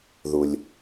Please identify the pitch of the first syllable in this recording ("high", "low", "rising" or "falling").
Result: low